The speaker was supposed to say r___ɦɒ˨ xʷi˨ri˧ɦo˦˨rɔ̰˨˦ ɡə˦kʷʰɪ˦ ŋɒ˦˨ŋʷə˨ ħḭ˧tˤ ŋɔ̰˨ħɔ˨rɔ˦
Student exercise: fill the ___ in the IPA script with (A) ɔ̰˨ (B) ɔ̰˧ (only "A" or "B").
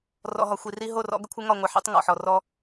A